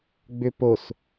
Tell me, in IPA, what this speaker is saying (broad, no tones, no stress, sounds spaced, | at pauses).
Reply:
ɡ͡b ʏ p o s